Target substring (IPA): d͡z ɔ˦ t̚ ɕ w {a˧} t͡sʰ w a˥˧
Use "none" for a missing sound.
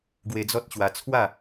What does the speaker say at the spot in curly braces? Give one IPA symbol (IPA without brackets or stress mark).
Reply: a˧